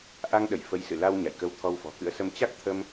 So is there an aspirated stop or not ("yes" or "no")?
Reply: yes